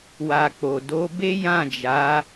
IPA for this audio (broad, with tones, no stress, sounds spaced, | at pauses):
w a˨ k͡p o˨ d o˨˦ b e˦ j ã˦˨ d͡ʒ a˨˦